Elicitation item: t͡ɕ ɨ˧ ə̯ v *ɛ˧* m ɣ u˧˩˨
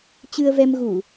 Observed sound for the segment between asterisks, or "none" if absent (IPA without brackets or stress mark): ɛ˧